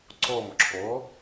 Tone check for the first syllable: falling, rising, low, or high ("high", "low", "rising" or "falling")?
falling